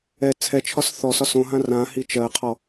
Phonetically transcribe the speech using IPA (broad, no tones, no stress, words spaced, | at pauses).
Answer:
ɛ t͡sʰɛt͡ʃʰɒs θɔsɒ sõɦã rãhi t͡ʃɜqʰɔ